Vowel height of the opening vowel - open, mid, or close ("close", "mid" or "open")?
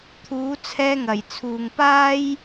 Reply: close